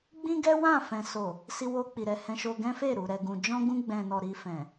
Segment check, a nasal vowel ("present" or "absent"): present